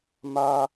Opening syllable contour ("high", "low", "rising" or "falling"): low